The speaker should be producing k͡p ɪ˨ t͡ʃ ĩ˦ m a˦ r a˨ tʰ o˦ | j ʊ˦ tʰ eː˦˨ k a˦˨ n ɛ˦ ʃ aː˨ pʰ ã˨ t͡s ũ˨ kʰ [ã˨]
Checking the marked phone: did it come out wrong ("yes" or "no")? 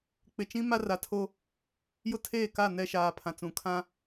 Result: yes